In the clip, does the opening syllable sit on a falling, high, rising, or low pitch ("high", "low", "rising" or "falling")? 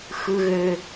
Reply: high